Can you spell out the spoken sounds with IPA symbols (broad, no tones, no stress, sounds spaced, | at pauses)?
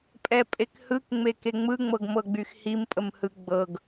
pʼ ɛ pʼ e k h ɯ k ŋ͡m e k e ŋ͡m ɯ ŋ͡m ɤ ɡ m ɤ ɡ͡b y x h i m pʼ ə m h ɯ ɡ͡b ɤ ɡ